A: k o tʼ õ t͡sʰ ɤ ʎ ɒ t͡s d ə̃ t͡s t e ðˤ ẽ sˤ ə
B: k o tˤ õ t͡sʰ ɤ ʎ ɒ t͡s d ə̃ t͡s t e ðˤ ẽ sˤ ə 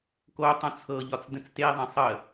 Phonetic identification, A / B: B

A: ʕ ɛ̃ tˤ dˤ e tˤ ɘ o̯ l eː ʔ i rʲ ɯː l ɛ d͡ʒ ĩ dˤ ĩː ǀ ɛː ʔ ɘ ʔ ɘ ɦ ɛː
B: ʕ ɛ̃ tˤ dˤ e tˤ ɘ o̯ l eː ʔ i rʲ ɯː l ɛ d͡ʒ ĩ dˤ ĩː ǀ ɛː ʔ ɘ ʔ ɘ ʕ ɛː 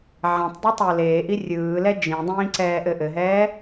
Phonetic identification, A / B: A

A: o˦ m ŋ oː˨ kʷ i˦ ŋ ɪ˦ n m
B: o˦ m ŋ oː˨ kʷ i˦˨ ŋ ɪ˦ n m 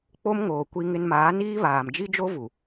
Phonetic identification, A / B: A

